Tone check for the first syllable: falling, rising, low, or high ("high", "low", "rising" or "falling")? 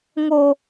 high